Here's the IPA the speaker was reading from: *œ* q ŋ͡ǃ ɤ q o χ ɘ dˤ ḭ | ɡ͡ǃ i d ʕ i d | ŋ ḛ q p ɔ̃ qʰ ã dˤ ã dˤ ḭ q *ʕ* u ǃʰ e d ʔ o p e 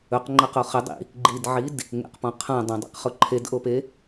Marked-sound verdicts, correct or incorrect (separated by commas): incorrect, incorrect